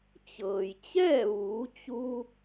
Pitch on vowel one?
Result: low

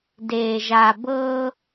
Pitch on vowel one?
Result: low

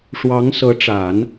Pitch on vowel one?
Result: rising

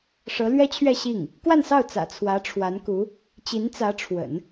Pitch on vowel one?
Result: rising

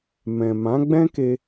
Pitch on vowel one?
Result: low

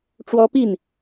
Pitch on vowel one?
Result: high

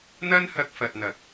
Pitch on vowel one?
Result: high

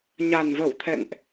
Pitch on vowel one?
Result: low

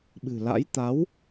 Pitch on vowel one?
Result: low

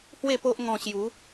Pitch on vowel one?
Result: falling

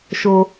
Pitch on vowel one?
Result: high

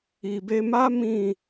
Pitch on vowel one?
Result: low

